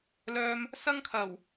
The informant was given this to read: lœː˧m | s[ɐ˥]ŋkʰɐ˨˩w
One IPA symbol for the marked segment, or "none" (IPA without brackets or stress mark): ɐ˥